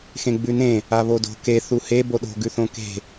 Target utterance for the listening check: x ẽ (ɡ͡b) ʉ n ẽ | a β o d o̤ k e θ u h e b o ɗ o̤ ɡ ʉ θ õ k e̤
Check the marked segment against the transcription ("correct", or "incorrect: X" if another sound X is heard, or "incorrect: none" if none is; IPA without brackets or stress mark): correct